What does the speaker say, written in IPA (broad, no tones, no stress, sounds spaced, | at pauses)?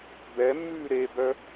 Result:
b ɛ mː ʉː ɾ e b œ